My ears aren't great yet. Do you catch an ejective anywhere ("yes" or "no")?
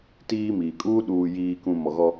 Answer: yes